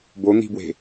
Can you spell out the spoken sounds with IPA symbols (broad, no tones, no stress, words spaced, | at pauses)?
bon̪i̤bwe̤